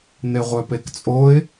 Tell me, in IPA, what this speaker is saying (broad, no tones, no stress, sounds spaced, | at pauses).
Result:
n̪ e ʁʷ œ p e k t͡sʼ o ɪ̯